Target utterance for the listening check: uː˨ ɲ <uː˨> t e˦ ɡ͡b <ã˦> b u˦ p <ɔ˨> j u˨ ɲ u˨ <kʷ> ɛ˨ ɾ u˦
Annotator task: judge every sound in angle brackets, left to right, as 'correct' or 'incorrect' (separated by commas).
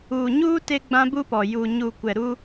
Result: incorrect, correct, correct, correct